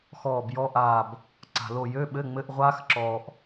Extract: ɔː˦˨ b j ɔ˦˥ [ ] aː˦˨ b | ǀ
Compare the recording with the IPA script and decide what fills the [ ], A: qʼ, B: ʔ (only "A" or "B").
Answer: B